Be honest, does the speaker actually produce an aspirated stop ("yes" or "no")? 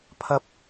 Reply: yes